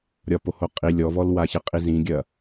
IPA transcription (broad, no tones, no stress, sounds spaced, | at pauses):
ɾʲ ɒ p o h o qʼ i lʲ ɔ v ɔ l w a ç ɘ qʼ i z ĩ ɡʲ ɐ